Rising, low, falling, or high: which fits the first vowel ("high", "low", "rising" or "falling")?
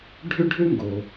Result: high